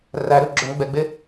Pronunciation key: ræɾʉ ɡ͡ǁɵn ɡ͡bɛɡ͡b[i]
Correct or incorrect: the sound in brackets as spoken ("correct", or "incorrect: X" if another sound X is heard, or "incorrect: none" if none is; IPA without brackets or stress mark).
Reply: incorrect: e